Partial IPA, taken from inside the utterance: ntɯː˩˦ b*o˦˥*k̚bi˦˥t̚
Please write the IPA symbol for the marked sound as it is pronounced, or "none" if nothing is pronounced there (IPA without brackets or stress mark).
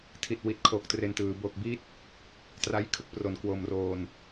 o˨˩